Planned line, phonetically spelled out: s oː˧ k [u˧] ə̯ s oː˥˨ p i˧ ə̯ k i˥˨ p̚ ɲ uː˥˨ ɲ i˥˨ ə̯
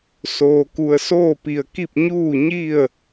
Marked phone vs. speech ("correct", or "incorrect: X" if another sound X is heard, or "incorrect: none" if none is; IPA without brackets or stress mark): correct